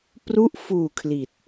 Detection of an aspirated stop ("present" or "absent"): present